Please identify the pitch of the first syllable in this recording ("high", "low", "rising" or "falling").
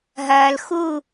low